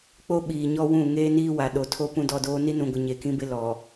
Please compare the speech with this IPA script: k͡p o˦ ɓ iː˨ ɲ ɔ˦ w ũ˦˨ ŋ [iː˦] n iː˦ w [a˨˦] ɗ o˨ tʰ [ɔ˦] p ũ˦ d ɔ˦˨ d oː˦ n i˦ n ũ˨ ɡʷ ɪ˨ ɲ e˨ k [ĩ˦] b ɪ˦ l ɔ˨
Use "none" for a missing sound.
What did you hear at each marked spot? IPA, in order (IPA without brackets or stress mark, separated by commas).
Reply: eː˦, a˨, o˦, ĩ˦